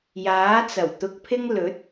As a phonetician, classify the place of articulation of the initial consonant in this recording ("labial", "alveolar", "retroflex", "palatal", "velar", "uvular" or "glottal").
palatal